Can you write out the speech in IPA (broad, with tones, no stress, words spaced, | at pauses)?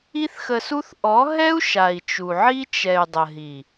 i˦θxə˧su˦θ ʔɔ˨˦ɦɛ˦u̯ ʃa˨i̯t͡ʃu˨ʕi˦ t͡ʃɛ˨y̯ dˤə˨ ɦi˨